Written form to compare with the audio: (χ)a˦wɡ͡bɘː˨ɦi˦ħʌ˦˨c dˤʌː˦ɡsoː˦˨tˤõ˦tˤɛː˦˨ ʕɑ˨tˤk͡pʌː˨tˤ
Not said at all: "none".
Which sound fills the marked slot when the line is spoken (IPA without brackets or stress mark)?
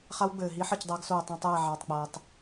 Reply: χ